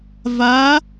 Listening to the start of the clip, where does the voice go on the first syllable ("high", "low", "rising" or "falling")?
rising